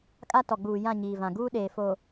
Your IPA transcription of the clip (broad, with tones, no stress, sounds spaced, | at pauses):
kʼ a˦ t ɔ˨ ɡ͡b uː˨ j ã˦˨ ɲ iː˨ v ã˨ ɡ uː˦ ɗ eː˨ f o˨